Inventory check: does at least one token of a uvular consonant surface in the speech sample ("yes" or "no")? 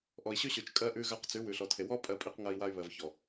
yes